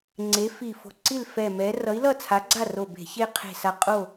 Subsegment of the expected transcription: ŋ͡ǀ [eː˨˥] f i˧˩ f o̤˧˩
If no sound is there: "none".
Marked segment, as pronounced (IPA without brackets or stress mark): e˨˥